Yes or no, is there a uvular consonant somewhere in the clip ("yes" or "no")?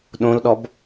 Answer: no